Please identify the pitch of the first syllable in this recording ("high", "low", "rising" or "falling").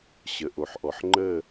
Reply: low